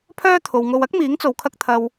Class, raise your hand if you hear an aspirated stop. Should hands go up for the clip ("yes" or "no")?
yes